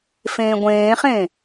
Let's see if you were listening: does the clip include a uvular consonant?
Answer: yes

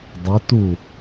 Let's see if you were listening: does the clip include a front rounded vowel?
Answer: no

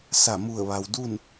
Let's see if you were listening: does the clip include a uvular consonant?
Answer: no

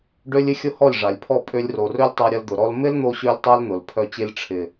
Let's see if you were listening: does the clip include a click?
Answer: no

